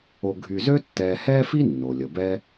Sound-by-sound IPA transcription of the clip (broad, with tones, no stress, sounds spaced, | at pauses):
o˨ ɡʱ y˨ z ø˦ tː ɛː˨ h ɛː˥ f i˥ nː o˩ lʲ ə˩ b ɛ˦